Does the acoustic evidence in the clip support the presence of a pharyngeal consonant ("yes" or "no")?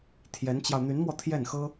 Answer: no